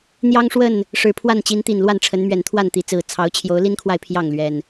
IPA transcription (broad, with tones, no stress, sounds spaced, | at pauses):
n̪ j ɑ˦ ŋ ʂ w ə˥˨ n | ʂ ɻ̩˨˩ pʰ w a˥˨ n t͡ɕ i˨˦ n t̪ i˨˩ n l w a˥˨ n ʈ͡ʂʰ ə˨˦ n m ɥ ɛ˨˩ n t̪ʰ w a˥˨ n t̪ i˨˦ t͡s ɹ̩˨˩ t͡sʰ ɑ˨˦ ʊ̯ t͡ɕʰ j o˨˦ ʊ̯ l i˦ n kʰ w a˨ ɪ̯ pʰ j ɑ˥˨ ŋ l ɥ ɛ˨˩ n